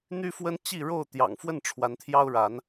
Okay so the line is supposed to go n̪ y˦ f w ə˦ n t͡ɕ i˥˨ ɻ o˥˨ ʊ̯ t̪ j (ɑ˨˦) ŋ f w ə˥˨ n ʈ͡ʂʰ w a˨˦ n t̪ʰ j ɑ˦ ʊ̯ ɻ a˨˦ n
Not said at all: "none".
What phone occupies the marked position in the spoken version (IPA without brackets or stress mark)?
ɑ̰˨˩